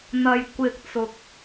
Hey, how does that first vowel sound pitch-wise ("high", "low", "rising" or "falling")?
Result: low